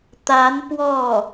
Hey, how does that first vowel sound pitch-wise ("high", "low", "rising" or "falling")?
rising